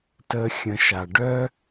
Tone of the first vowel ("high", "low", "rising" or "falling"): high